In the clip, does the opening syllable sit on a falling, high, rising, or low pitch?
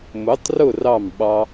rising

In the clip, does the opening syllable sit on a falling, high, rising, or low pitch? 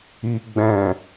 low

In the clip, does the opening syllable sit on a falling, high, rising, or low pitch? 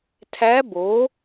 rising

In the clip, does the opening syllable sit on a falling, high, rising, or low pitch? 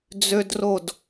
high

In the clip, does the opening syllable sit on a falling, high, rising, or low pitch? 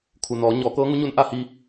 low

